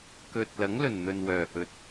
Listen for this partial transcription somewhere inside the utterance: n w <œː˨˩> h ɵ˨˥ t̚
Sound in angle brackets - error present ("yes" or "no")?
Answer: no